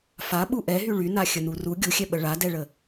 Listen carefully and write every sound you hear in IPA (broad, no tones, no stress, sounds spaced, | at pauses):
f a ɓ u ʔ ɛ ɦ y ɭ y n a xʲ ə n u r u ɡʲ u xʲ ɛ ɓ ə ɭ a d ɛ ɭ ə